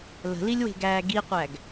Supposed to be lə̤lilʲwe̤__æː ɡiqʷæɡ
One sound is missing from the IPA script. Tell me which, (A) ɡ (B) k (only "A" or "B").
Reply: A